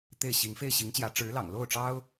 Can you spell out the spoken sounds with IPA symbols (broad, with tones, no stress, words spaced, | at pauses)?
t̪e˥˩ɪ̯ɕi˧˥ŋ fe˥˩ɪ̯ɕi˧˥ŋt͡ɕjä˧˥ ʈ͡ʂɻ̩˧˥lɑ̰˨˩ŋ lo˥˩ʊ̯ʈ͡ʂɑ˥ʊ̯